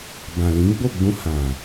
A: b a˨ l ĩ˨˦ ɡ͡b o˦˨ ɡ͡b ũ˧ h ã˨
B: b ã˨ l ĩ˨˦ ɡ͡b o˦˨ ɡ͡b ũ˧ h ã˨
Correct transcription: B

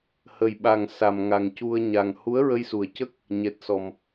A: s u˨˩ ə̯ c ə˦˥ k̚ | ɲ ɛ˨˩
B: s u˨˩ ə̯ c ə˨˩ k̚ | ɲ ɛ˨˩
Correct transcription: A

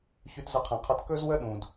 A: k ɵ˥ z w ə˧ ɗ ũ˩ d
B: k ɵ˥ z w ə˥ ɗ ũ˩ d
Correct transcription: B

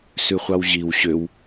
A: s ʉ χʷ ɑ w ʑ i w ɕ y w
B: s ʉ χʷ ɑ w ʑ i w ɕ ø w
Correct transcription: B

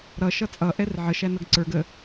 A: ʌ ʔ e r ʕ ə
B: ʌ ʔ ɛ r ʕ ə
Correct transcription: B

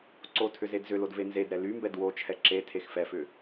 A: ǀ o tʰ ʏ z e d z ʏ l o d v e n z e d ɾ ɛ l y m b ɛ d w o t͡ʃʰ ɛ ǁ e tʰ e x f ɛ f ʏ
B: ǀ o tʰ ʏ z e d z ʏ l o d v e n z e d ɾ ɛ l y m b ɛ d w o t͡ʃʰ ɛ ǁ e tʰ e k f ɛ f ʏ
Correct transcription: A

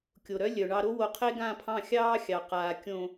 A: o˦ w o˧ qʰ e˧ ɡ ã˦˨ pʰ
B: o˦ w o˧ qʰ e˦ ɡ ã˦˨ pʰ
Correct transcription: B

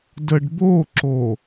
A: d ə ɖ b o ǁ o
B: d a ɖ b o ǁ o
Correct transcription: A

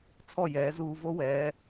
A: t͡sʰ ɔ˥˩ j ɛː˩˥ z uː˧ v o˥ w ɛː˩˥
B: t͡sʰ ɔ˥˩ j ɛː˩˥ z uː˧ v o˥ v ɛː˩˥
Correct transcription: A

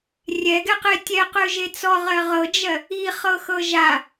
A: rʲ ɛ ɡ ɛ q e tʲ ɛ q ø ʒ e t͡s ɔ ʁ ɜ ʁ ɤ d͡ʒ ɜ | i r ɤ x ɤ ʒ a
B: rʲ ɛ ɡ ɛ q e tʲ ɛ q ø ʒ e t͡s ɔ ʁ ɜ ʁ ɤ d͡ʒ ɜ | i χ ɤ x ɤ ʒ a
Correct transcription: B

